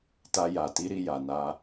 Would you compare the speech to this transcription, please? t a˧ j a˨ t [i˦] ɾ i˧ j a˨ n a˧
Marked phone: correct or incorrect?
incorrect